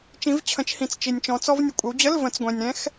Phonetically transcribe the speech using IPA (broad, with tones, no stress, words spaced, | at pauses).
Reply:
t͡ʃĩ˨˦vt͡ɕʰə̃˨˦t͡ʃhĩ˨t͡s t͡ʃi˨nʲt͡ʃɔ̃˨˦t͡sɔ˦˥v nʲə˨kʷʼɪ˨˦wd͡ʑə˧˥˧l və̃˨˦t͡sɡʷɛ̃˨nʲ ɾɛ̃˦˥x